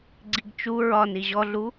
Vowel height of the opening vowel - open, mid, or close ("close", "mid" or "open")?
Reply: close